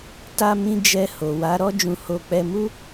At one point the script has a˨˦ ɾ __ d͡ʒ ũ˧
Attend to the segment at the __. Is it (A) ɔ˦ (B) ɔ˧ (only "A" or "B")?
A